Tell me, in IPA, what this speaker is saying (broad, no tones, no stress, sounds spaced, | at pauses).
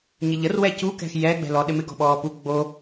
ɲ ɪ ʎ ə r w ɛ c u k ɛ̤ x j ɛ ɡ͡b ɛ̤ l ɔ ɗ ɪ m ɪ ɡ ɔ̤ ɓ ɔː p u ɡ͡b o